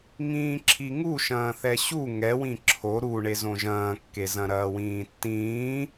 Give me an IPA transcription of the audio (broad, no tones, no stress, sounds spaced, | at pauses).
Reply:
ŋ ĩː ǁʰ i ŋ u ʃ ɐ̃ː θ ɛ ɕ u ŋ ɛ w ĩ ǁʰ o ɾ u ɳ e z õ ʒ ɐ̃ː kː e z ɐ̃ ɾ ɐː w ĩː tː ĩː